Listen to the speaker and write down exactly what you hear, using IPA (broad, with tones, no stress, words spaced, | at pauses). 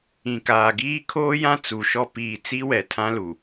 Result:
ĩ˨kaː˨ɡiː˦ kʰoː˦jã˦ t͡su˨ʃɔ˦ piː˨ t͡si˦wɛ˨tʰã˦lu˨